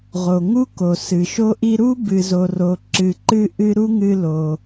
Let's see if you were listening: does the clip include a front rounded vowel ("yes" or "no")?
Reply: no